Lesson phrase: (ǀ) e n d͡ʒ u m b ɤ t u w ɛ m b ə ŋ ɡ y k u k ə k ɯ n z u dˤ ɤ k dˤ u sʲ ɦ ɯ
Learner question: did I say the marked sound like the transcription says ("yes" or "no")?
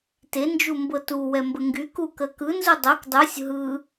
no